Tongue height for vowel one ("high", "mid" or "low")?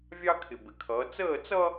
low